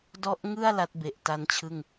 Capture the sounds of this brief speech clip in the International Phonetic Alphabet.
d ɔ˦˥ ʔ ŋ ɯ˥˩ a̯ l a˦˥ t̚ b e˨˩ ʔ t a˦˥ n t͡ɕʰ ɯ˥˩ ŋ

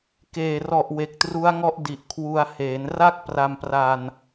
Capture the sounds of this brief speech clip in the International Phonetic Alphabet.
k eː˨˩ r ɔ˨˩ ʔ w e˨˩ k̚ t r u˦˥ a̯ ŋ ɔ˦˥ ʔ d i˨˩ ʔ kʰ w u˧ a̯ h eː˩˦ n r a˥˩ k̚ p r a˧ m p r a˧ n

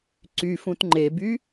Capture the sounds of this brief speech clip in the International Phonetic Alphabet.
ǀ y f ũ t ŋ͡ǃ e b y

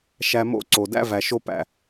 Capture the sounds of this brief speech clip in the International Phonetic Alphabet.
ʃ æ˧ m o̰˦ ǀ o˨ d æ̰˦ v æ˨ ʃ o˦ p æ̰˧

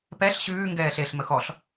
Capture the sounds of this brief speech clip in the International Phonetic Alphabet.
p ɛ ɬ ɕ ʉː ŋ ɡ ɛː ɬ e ɬ m ə x ɔ ɬ

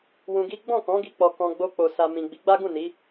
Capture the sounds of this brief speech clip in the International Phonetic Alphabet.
w ũ˧ ɡ i˦ ɡ͡b ɔ̃˦˨ k ɔ̃˨˦ ɡ i˧ k͡p ɔ˨ k ɔ̃˧ ɡ͡b o˧ k͡p o˨ s a˨ m ĩ˨ ɡ͡b i˨˦ ɡ͡b a˦ ɡ ũ˦˨ n i˨˦

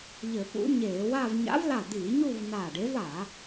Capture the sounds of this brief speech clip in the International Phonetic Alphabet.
ʎ ɘ˧˩˧ p ṵ˧˥ ɲ eː˧˩˧ w a˥˧ v ɲ a̰˧˥ v l a˧˩ d̪ iː˧˩˧ ɲ u˥˧ v n aː˧˩ ɖ e˧˥ v a˧˩˧

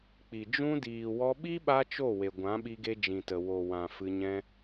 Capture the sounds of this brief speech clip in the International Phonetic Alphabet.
k͡p i˨ d͡ʒ ũ˦ d iː˨ w ɔ˧ ɓ i˦ ɓ a˦ t͡ʃ o˦˨ w e˨ ɡʷ ã˨˦ ɓ i˧ ɡ e˧ d͡ʒ ĩ˨ t ə˨ w o˨ w ã˨ f ɨ˧ ɲ ɛ̃˦

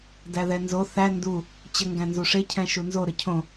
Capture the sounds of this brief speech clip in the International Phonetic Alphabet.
d æ ð ɛ n z o θ æ n d u | t͡ɕ ə ŋ ɡ æ̃ n z u ʂ e cʰ ɛ̃ ʃ u n z o ɾ ə cʰ õ

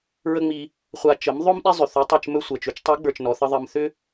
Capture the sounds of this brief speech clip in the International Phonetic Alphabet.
ɹ ə˦ ŋ͡m i˧ | χʷ a˧ t͡ʃ ə˨˦ m ðˤ ɵ˦ m ɗ i˦ zˤ ʏ˨ θ ʏ˨˦ tˤ e˧ t͡ʃ m ɵ˦ sʷ ɜ˨ t͡ʃ ʏ˨˦ t͡ʃ tˤ i˨˦ ɡ͡b ə˞˨ t͡ʃ n ɔ˨ θ ə˦ ðˤ ɜ˧ m θ ʏ˦

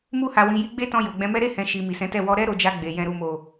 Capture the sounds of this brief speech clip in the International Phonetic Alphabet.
m u˧ h a˨ w ĩ˨ j i˧ ɡ͡b e˦ t ɔ̃˧ j o˨ ɡ͡b ɛ̃˨˦ m ɛ˦ ɾ e˦˨ h ɛ̃˨ ʃ i˨ m i˨ s ɛ̃˨˦ t ɛ˦˨ w ɔ˧ ɾ ɛ˦ ɾ o˧ d͡ʒ a˧ ɡ͡b e˨ j ɛ̃˨ ɾ u˨ m o˨

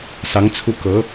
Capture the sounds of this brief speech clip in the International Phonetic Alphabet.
s ɑ˧˥ ŋ t͡sʰ u˥˩ k ɤ˧˥

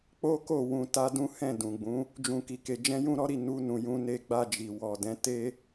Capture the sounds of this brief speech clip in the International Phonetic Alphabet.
k͡p o˦ k o˦˨ w ũ˧ t a˦ d ũ˦ h ɛ̃˦˨ d ũ˨ ɡ͡b ũ˨˦ | d͡ʒ ũ˧ k i˧ k e˧ d͡ʒ ɛ̃˦ j ũ˦ ɾ ɔ˦ ɾ i˧ n u˧ n ũ˨ j ũ˧ n e˧ ɡ͡b a˧ d͡ʒ i˨ w ɔ˨ d ɛ̃˨˦ t e˦

